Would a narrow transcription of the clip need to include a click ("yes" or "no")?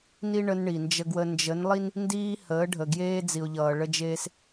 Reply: no